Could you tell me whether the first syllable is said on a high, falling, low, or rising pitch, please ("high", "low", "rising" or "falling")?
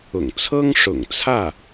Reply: low